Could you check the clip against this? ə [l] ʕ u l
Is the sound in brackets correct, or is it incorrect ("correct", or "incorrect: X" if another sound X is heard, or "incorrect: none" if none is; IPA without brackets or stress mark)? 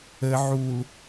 incorrect: none